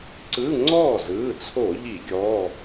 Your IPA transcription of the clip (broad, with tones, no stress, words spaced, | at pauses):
ǀɯ˧˥˧ ŋ͡ǀɔː˥˩zɯː˩˧˩t͡sʰo˧˩˧ ʎi˧˩˧ ɡʲɔ˩˧˩